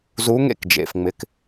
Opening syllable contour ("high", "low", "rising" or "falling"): rising